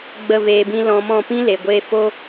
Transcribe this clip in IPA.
ɡ͡b ə˦˨ v eː˧ b ĩ˦ l ɔ̃˧ m ɔ̃˦˨ p ĩ˦ l e˨ ɡʷ eː˧ f o˦

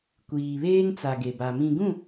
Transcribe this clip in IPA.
kʷ iː˨ β eː˦ ŋ t͡s a˨ ɡ e˨ b a˨ m ĩ˨ ɡ ũ˦˨

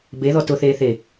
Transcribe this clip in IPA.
b e ð ɔ t ʊ θ eː θ e

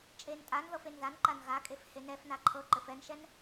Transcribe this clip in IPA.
t͡ʃʼ e n tʼ a n ð ɤ f e n ð a n ǃ a n ɣ a kʼ e f h e n ɛ f n a ǃʰ ɤ ǃ ɘ f ɛ n ʃ ɛ n

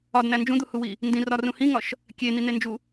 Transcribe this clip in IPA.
ɒ d n̪ æ n d͡ʒ ũ d̪ u h u w i | n d ĩ r ɒ r ũ h ĩ ŋ ɒ ʃ | kʲ e n̪ i n̪ e n d͡ʒ u

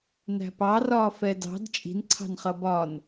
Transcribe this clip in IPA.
n æ̤ p ɑ r ɒː f ɛ d ɑ̤ d t͡ʃʼ i̤ n ǀʰ ɑ̤ n χ ʌ b ɒ n

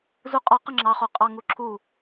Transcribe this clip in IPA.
z u qʼ ɒ q ə ŋ͡ǁ ɑ χ o qʼ ɑ ŋ u ǁʰ u

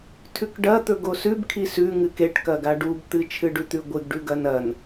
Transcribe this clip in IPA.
tʰ ʉ k ɖ ɐ t̪ ɵ ɡ o s ʉ b kʰ i s ʉ ŋ ɨ k e ʈ k ɐ ɡ a ɖ u b t̪ ɨ t͡ʃʰ ɨ ɖ ʉ t̪ ʉ ɡʷ ɨ ɡ ɖ ʉ ɡ ɐ n ɐ n

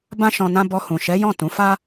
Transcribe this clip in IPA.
b ã˦ ʃ ɔ̃˧ n ã˦ b ɔ˧ h ũ˨ ʃ ɛ˨˦ j ɔ̃˦˨ t ũ˨˦ f a˦

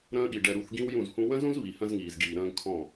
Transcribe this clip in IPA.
ɾ ə̃ː˦ ɠ i˨ ɖ ɛ˨ ɾ u˨ θ ɡ ĩ˦ w j ũ˦˨ z h ũ˦ w ə̃˦ z ũ˦ z β i˨ h ə̃˦ z ŋ iː˨ z ɡ iː˨ ɾ ə̃ː˦ ɡ kʰ ɔ̃˦˨

